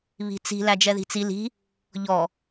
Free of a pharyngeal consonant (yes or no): yes